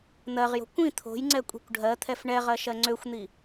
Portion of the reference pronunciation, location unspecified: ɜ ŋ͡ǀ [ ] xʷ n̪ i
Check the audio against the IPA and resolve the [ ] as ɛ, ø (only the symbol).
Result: ø